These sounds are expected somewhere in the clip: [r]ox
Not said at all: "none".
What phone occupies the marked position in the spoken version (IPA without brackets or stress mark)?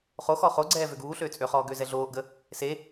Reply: χ